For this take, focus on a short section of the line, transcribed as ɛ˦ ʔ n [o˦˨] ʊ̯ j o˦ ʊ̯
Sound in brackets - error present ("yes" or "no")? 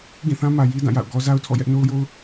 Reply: yes